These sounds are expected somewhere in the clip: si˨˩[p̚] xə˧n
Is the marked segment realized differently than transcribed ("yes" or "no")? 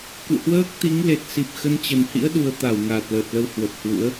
no